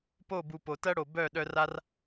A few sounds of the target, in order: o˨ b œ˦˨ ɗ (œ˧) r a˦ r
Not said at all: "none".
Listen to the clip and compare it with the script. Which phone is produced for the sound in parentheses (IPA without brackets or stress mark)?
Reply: œ˧